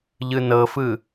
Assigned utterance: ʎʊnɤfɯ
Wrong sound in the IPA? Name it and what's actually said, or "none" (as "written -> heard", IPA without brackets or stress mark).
ʊ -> ɯ